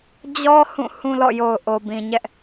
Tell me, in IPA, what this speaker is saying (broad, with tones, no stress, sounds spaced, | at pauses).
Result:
d͡ʑ ɔ˦ h ũ˦˨ h ũ˦ l ɔ̰˦˨ j o˨ ʊ̯ ʔ o˨ b ĩ˨ ɲ ɛ˦ ʔ